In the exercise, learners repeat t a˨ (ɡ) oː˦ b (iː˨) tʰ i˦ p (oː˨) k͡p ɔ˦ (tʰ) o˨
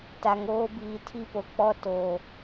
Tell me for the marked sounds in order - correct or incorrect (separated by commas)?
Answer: incorrect, correct, incorrect, incorrect